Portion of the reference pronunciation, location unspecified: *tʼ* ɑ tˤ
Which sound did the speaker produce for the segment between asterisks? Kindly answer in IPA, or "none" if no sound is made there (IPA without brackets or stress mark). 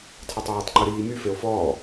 tʰ